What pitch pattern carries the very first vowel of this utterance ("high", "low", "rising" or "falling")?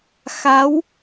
rising